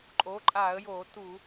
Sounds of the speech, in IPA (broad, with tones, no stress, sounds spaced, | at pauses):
ǃʼ o˩˥ ǃʼ a˧˩˧ ə̯ j o˧˩˧ t u˧˩˧